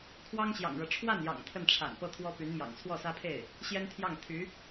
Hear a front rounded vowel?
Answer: yes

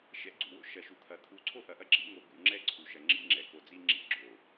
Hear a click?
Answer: yes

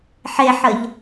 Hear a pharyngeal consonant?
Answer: yes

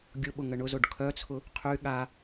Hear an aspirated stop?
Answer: yes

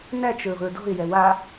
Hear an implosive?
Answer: no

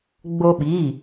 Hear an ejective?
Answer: no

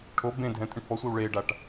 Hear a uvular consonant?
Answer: no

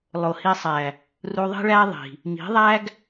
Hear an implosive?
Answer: no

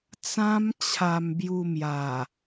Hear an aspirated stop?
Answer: yes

